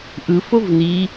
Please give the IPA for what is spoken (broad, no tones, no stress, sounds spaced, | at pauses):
ʔ ɯ f o v n i